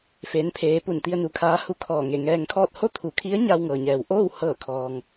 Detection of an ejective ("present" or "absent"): absent